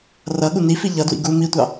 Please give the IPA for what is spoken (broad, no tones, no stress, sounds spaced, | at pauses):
r ʌ ɠ u n i f i ʎ ʌ d w ḭ ɡ u m i tʷ ɑ